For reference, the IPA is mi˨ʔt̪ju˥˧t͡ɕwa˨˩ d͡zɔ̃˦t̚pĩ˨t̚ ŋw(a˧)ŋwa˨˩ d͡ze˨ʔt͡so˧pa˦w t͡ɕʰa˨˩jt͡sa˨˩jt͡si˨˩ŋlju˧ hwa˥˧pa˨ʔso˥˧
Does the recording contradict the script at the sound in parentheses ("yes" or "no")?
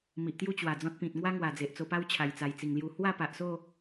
yes